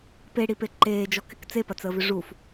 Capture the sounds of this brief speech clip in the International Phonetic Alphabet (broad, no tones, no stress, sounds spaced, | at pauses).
p e ɽ i p e ǃ eː d͡ʒ ɔ k ɪ k t͡s e p ɐ t͡s əː v ʏ ʐ u f